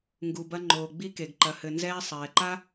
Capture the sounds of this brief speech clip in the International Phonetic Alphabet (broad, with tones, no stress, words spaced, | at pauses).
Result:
ŋɡu˨bɐ˧ ŋ͡ǃoː˨ɡ͡bi˧ke˨ɡ ǃɐ˨hɘ˨nzɛː˧ sˤɛː˨ǃa˦